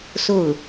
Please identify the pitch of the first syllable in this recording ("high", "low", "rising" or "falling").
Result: falling